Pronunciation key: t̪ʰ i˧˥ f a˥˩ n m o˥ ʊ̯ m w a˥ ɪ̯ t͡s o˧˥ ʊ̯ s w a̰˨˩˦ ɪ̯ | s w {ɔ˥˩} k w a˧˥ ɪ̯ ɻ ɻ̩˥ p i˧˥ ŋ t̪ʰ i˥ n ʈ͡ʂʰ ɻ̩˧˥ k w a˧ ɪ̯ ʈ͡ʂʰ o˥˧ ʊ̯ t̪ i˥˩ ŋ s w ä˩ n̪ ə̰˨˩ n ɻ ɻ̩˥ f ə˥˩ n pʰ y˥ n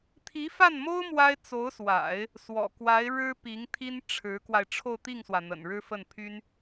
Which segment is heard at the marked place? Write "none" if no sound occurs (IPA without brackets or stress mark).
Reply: ɔ̰˨˩